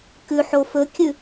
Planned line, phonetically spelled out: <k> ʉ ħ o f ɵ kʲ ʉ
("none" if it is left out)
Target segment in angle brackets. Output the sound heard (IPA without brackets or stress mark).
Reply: k